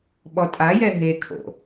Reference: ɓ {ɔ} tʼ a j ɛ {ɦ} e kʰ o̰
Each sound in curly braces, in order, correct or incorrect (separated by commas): correct, correct